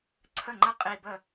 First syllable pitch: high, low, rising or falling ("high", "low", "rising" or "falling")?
falling